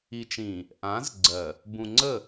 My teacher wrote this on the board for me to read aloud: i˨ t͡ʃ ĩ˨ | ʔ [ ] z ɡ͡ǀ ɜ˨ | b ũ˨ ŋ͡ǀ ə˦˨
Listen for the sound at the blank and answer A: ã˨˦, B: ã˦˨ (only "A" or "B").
A